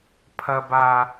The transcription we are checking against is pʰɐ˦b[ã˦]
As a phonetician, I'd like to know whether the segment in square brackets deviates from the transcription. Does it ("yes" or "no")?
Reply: yes